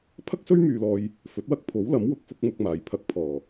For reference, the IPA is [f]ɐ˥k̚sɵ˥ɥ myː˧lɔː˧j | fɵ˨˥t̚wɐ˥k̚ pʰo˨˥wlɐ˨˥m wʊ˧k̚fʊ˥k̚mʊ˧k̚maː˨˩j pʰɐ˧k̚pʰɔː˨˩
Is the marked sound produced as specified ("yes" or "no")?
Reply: no